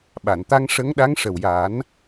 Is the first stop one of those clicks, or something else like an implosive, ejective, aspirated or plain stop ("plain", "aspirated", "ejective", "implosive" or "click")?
implosive